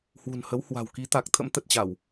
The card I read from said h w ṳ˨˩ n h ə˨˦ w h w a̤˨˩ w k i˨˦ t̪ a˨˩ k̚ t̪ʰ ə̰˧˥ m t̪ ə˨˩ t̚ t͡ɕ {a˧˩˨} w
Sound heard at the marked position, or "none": a˧˩˨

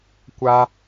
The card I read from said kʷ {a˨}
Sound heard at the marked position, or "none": a˦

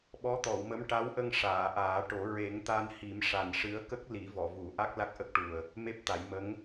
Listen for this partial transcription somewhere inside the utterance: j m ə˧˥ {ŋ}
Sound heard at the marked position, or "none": ŋ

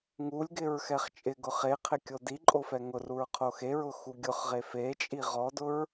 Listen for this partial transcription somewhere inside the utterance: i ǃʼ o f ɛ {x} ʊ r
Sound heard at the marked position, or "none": ŋ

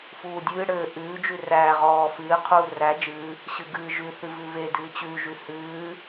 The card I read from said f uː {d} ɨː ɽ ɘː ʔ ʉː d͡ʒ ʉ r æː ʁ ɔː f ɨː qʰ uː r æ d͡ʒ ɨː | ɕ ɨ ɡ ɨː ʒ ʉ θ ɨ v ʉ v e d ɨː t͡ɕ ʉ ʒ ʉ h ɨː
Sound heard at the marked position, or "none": dʲ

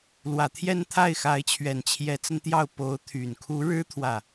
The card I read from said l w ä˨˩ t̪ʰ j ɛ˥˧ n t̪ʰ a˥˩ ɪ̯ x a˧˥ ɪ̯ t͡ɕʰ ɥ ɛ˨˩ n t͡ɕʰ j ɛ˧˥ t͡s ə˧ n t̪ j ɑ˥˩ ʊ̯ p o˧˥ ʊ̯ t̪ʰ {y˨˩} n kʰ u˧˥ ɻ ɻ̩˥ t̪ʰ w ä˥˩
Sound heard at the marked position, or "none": y˨˩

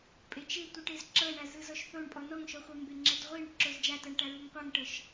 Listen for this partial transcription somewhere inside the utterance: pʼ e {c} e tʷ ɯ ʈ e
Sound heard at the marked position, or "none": t͡ʃ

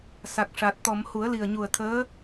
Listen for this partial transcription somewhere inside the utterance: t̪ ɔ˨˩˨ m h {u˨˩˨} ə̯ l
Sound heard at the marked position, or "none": u˨˩˦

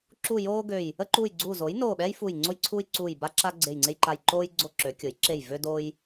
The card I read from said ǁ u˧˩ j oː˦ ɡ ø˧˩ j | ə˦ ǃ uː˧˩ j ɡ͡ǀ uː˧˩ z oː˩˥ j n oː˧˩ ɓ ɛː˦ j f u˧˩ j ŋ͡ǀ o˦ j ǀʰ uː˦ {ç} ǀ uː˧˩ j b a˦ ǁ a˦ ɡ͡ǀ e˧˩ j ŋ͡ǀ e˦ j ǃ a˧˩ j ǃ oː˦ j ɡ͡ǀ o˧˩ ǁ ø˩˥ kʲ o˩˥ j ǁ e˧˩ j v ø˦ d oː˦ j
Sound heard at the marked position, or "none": j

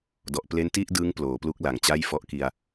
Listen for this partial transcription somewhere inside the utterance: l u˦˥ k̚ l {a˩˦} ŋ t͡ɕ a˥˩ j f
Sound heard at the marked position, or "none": a˩˦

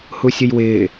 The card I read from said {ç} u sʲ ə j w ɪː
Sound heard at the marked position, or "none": h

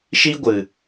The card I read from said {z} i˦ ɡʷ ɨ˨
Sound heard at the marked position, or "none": ʃ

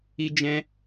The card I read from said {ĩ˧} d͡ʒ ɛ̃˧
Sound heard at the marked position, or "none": i˧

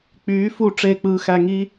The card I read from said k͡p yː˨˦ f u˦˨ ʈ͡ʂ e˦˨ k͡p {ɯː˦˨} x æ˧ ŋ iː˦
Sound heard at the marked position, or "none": ɯː˧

